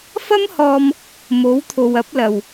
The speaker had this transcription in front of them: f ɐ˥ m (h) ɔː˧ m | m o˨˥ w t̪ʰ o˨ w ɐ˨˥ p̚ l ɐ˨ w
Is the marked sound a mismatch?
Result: no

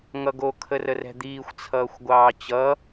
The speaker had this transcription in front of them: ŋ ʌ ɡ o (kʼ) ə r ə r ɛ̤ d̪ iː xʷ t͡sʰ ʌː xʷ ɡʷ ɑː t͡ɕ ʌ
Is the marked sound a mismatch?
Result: yes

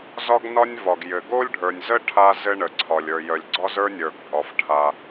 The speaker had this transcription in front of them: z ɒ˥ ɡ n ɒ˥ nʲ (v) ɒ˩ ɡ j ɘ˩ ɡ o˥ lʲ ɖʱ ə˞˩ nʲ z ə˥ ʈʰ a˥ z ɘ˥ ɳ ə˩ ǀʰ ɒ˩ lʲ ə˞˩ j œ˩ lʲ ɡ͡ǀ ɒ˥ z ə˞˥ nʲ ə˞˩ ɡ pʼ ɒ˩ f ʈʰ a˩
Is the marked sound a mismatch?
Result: no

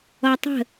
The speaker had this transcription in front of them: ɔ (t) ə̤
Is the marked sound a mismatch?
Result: yes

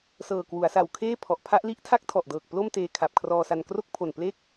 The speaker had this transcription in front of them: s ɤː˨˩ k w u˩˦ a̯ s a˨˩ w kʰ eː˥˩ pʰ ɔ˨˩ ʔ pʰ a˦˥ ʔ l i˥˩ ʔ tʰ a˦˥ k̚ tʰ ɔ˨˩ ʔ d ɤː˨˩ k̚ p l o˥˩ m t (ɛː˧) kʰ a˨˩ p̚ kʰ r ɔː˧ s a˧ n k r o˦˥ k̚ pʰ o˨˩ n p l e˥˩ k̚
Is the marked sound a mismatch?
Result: yes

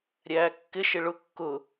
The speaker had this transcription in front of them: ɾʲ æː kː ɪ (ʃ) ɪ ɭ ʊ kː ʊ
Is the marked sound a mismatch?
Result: no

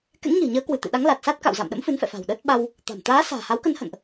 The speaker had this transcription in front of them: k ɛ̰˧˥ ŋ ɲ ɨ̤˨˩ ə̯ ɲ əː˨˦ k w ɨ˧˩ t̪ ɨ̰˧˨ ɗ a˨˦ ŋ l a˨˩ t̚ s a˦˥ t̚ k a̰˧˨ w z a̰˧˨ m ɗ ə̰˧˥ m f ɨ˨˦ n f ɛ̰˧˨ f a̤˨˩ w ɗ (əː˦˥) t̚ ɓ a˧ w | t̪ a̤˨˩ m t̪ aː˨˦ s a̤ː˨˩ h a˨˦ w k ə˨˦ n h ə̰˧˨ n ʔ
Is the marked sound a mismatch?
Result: no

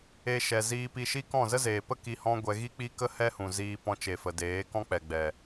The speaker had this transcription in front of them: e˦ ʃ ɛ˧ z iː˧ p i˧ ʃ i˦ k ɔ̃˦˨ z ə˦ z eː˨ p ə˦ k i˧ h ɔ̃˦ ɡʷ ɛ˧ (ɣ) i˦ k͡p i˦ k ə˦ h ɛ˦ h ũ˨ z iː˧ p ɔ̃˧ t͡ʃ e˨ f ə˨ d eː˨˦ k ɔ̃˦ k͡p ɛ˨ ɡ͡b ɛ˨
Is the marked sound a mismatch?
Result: no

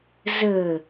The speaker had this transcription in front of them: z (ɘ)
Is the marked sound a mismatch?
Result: no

